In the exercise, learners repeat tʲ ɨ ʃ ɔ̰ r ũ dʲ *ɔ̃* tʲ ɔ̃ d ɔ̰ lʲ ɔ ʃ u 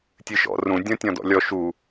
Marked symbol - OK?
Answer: yes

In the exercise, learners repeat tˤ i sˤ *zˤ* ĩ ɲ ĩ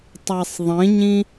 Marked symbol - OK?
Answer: no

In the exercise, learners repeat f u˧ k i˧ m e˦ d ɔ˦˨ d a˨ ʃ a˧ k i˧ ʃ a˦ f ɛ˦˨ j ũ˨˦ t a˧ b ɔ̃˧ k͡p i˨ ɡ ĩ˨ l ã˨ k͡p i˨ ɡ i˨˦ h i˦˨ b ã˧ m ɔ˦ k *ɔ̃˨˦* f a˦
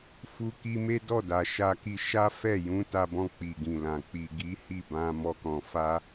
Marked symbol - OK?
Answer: no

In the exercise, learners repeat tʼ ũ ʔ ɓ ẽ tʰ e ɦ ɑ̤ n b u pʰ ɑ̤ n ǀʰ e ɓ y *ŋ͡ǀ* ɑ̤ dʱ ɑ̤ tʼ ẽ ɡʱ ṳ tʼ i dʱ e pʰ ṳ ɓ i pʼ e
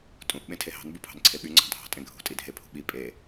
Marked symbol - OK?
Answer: yes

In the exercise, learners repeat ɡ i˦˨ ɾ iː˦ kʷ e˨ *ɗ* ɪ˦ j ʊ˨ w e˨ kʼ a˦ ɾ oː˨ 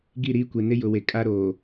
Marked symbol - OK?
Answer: no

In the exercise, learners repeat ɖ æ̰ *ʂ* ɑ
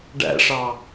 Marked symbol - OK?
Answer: yes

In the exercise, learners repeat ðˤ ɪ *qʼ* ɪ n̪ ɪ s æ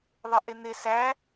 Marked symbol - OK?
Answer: no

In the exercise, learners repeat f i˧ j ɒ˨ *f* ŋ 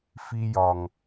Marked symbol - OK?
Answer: no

